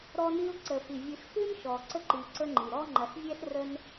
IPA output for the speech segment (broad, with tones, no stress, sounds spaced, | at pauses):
ɾ ɔ˦ n i˦ ʊ̯ ǀ ə˩ f i˩ vʲ ɨ˨ ɬ x ɨ˥ n ʃ ɔ˩ ǀ ə˦ ǃ i˨ ǀ ə˦ ŋ͡ǃ i˩ ɾ ɔ˥ ŋ͡ǃ ɐ˨ ɬ vʲ ɛ˥ ɬ r ə˦ n